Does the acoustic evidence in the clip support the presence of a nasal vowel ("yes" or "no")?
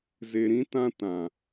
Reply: yes